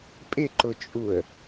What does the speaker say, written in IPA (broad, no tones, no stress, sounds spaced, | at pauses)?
pʼ ɪ ǃ ʊ t͡ʃʼ u ə̯